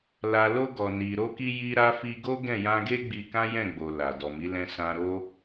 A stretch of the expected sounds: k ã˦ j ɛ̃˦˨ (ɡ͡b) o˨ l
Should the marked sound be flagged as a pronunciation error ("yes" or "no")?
no